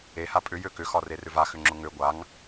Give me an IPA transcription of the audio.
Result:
eha pʼʏjø kʏxɒrerʏv axʏŋ͡ǁʊ ŋø ɡʷaŋ

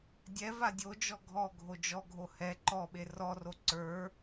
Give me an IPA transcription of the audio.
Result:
dʲɛ vadʲod͡ʒɔ ɡʱɔ ɡʱod͡ʒɔɡʱo hɛ ǃɔɓe rɔro ǀə˞

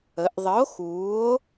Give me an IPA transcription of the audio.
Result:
ə˩˧ʔðˤə˨˥o̯ xuː˨˥o̯

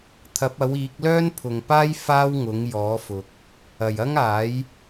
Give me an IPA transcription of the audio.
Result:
t̪ʰɐ˨˥p̚ɐ˨˥wiː˨˥k̚ lœː˥npʰʊ˨ŋpaː˥j faː˥wŋʊ˨˥ŋ jɔː˨˥fʊ˨k̚ | ɐ˨˩jɐ˥ŋaː˨˥j

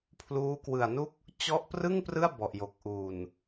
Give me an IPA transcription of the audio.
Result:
pʰluː˦˥kwɯ˨˩a̯nu˥˩k̚ | t͡ɕɔ˥˩ʔ prɯ˥˩ŋprɯ˥˩a̯ bɔ˨˩ʔjo˨˩k̚ ʔuː˨˩n

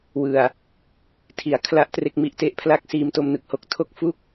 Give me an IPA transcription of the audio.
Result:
wɯ˨˩a̯ | tʰi˩˦a̯kʰla˥˩ʔ tre˥˩k̚mi˦˥ʔte˦˥ʔ pʰla˥˩k̚siː˧mto˧m nɯ˨˩k̚ho˦˥k̚tʰo˥˩k̚ fu˥˩k̚

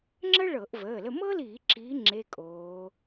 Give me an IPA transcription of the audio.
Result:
ŋ͡ǁə˥ ɭɤ˧˩˧ʔvəː˩˧˩lə˦˨ mɤ˥liː˧˩˧ǁiː˨˦ ŋ͡ǁe˧˥˧kʼoː˨˦

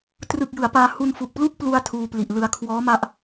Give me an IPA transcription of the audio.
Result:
trɯ˨˩k̚ jɯ˩˦a̯paː˧ hu˧nfu˨˩k̚ plu˥˩k̚plu˧a̯ tʰuː˧pli˨˩ʔlɯ˧a̯ kʰwɔː˦˥ma˦˥ʔ

